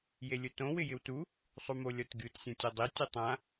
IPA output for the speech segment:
j e lʲ ʊ t õ w ɪ j ɪ w t u | sˤ u m o lʲ ɔ t ɡʲ u t sʲ ɔ̃ tʲ ɔ dˤ i tʲ ʊ tˤ ã

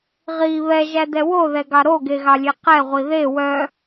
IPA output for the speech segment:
ʁ i β ɛ ʒ æ d ɛ w o ð ɛ ɡ ɑ ɾ o ɡ e ɣ ɑ lʲ e q ɛ ʁʷ i ð e w œ

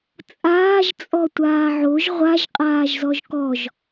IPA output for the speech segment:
t͡sʼ aː ʒ t͡sʼ ɔ tʷ aː ʕ o ʒ ʁʷ a ʒ qʼ aː ʒ z ɔ ʒ k ɔ ʒ

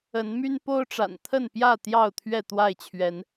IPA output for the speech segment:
ə˨˦ n m y˦ n p o˦ ʊ̯ ʈ͡ʂ a̰˨˩ n t̪ʰ ə˥˨ n p j ä˥˨ t̪ j ɑ˥˨ ʊ̯ t̪ʰ ɥ ɛ˥˨ t̪ w a˥˨ ɪ̯ t͡ɕʰ ɥ ɛ˨˦ n

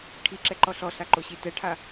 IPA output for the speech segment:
ʈʰ i ǁ ɛ ǃ ɔ ɬ ɔ ɬ a ǃ o ɕ i t ɛ ʈʰ a

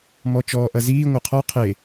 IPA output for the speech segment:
m ɔ t͡ʃ ɔː ʔ ɐ z iː ŋʷ a qʰ ɔ qʰ e

